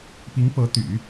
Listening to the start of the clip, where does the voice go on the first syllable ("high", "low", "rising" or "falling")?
rising